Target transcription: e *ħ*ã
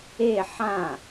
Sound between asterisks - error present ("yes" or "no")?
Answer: no